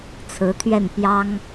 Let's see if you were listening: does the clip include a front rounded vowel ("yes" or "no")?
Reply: no